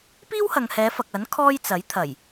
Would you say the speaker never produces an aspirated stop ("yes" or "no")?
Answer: no